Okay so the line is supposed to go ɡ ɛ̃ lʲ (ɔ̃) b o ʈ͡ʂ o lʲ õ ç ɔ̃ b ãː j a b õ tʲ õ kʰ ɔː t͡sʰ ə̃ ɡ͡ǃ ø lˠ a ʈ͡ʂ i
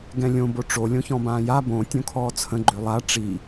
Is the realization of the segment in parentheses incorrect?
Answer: yes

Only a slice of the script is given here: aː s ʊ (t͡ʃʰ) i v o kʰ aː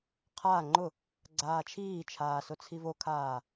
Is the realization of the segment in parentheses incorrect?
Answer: yes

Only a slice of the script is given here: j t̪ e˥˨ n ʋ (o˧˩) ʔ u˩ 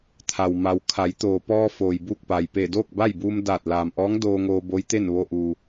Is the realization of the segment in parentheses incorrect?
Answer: yes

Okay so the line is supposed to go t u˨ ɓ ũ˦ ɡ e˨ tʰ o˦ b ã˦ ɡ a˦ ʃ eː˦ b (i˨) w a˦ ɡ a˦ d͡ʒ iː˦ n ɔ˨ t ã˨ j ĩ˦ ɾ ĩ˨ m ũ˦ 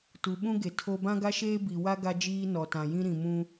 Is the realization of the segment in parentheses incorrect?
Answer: no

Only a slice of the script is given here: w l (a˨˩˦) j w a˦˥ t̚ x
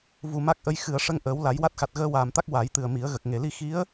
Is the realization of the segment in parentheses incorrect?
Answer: no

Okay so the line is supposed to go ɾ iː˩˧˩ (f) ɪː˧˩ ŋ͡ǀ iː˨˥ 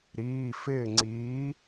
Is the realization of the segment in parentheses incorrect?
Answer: no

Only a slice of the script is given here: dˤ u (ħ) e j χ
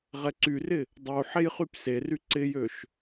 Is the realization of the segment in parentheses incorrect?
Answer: no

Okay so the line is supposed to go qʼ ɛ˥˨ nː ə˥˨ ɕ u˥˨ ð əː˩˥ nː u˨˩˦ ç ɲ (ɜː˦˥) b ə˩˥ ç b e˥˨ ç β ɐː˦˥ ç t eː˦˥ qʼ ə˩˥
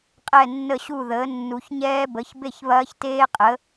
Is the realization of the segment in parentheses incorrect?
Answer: yes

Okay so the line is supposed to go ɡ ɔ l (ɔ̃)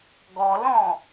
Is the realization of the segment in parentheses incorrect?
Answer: no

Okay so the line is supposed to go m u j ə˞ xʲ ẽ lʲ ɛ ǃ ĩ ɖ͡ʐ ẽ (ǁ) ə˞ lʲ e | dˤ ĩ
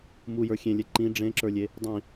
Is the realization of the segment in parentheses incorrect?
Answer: no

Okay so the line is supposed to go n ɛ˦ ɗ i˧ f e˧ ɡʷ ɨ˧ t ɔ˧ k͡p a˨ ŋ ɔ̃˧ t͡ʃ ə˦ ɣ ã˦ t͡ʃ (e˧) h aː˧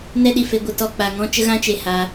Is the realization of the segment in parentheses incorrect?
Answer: no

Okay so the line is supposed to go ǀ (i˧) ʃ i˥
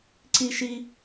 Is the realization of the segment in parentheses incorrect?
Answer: yes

